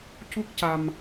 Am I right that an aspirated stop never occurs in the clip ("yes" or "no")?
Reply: yes